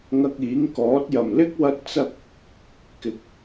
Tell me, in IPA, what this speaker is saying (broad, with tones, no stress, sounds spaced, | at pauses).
ŋ ɐ˧ k̚ iː˨˥ ŋ k ɔː˨˥ t̚ j ɐ˨˩ m l ɪ˥ k̚ w ɐ˥ t̚ t͡s ɐ˥ k̚ | k ɪ˧ k̚